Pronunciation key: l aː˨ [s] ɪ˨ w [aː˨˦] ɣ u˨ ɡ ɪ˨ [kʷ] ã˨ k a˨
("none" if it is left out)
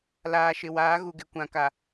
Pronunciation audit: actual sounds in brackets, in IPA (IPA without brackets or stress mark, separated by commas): ʃ, aː˨˦, kʷ